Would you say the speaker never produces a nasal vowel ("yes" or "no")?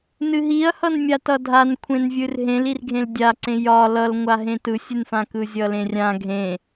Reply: no